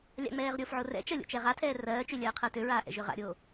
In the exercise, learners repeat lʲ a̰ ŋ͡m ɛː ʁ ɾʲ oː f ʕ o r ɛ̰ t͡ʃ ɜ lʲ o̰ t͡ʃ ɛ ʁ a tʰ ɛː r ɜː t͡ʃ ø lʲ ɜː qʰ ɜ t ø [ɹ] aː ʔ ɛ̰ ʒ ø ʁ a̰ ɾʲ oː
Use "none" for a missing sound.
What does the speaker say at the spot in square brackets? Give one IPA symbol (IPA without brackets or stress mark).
ɹ